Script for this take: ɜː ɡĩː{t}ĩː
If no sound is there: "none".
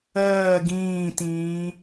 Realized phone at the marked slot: t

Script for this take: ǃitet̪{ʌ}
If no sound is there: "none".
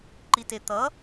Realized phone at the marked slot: ʌ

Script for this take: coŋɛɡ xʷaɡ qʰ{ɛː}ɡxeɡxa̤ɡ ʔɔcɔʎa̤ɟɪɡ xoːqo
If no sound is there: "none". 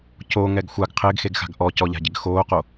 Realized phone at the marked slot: ɪː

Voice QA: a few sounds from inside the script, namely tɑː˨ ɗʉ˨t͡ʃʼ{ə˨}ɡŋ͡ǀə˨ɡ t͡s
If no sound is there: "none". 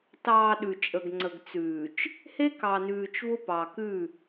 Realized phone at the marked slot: ə˨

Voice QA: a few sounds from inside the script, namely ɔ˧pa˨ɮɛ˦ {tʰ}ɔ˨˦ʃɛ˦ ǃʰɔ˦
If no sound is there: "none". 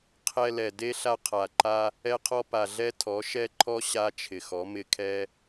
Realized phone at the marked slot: tʰ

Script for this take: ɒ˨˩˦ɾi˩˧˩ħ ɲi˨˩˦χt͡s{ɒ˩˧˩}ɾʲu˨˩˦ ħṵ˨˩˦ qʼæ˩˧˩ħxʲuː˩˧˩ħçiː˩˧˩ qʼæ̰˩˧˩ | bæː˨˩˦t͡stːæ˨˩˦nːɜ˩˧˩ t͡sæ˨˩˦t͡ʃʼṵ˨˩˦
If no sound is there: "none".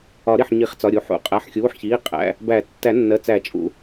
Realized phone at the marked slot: ɒ˩˧˩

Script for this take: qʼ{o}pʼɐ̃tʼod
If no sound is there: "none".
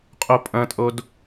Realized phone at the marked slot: o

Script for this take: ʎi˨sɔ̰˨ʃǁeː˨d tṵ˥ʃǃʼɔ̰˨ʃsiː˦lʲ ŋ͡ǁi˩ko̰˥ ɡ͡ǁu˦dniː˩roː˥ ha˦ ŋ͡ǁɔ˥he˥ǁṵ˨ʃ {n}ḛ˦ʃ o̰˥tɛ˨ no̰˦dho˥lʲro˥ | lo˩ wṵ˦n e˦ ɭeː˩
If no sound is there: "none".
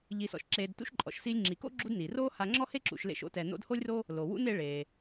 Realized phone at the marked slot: l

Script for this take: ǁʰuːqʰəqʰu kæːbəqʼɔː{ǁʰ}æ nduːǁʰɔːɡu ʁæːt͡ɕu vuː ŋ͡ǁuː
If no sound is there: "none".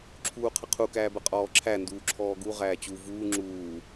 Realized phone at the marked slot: ǁʰ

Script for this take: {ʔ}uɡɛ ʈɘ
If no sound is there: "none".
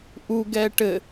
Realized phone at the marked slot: ʔ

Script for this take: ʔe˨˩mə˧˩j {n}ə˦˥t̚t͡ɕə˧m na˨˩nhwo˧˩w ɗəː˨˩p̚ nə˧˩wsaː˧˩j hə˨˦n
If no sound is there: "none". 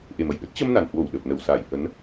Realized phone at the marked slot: ɗ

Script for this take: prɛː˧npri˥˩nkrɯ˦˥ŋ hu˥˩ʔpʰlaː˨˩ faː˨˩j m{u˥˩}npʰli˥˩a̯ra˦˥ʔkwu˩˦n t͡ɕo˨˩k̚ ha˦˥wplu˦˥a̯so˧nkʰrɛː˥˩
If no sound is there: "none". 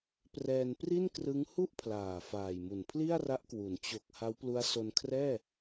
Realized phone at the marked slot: u˨˩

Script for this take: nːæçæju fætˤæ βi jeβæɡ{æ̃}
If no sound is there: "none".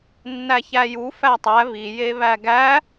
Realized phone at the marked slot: æ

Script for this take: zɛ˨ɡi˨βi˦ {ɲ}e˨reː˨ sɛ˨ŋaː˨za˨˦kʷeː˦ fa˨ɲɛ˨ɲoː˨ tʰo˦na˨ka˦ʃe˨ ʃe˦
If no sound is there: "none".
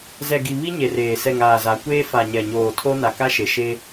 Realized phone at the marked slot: ɲ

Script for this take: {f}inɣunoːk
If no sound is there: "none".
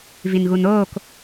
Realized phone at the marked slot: v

